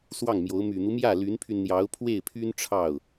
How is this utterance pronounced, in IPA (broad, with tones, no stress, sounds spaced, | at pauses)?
s w ɑ˥˩ ŋ m j o˧˥ ʊ̯ m y˨˩ n̪ u˦ m j ä˥˩ l y˧˥ n pʰ y˧ n n̪ j ɑ˧˥ ʊ̯ pʰ w e˥˩ ɪ̯ pʰ y˥ n ʈ͡ʂʰ ɑ˥˩ ʊ̯